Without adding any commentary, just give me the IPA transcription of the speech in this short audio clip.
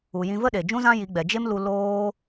u˨jĩ˧ və˦ɗe˨ d͡ʒũ˦zã˦ji˨˦ɡ͡bɛ˨ d͡ʒe˦m lu˧ loː˦

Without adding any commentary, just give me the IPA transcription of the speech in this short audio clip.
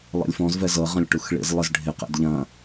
lˠḭlʲfɔ̃z vɛzɤ ʁɐ̃lʲʈuxɭḭz lˠɪzɖʱɪ qɛ̰dʎɐ̃

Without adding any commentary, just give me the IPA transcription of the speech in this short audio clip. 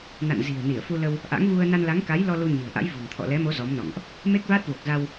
na̰˧˨nzi̤˨˩ə̯ ni˧˩ə̯fu˧lə˧w | ʔa̰˧˥ŋvu˧ə̯ na˧nla˨˦ŋka˨˦jlɔ˧ lu˧ɲi̤˨˩ə̯ʔa̰˧˥j vṳ˨˩ŋ t̪ʰɔ̰˧˨lɛ˨˦mo˨˦ zɔ˨˦mnɔ̰˧˨ŋʔ | me˦˥k̚vaː˦˥t̚ vo˨˩k̚za˧w

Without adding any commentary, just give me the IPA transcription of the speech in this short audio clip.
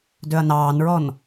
døɐ̯nɑːnɹɔn

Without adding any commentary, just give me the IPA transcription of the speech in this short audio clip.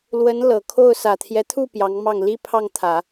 lwə˧˥n lɤ˨˩kʰo˥˩ʊ̯ sä˨˩t̪ʰjɛ˦t̪ʰu˥˩ pjɑ˧˥ŋmɑ˥˩ŋ li˥pʰɑ˥˩ŋt̪ʰä˨˩˦

